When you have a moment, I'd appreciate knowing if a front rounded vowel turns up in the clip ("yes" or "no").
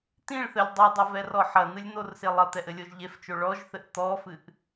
no